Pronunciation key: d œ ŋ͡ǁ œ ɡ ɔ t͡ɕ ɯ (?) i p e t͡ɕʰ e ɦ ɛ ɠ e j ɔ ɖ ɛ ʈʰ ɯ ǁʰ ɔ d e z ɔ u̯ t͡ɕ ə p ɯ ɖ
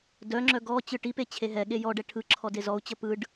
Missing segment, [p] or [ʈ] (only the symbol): ʈ